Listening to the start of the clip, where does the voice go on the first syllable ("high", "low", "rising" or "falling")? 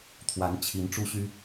rising